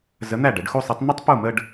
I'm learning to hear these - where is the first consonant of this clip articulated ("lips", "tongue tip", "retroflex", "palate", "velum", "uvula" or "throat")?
tongue tip